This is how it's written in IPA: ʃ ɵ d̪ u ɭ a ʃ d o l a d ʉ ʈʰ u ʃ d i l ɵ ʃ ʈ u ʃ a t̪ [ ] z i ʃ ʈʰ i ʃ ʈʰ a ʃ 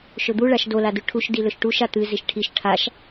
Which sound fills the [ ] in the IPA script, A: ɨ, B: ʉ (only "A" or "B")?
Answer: A